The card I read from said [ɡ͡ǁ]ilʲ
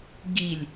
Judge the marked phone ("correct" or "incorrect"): incorrect